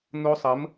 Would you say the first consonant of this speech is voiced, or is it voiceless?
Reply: voiced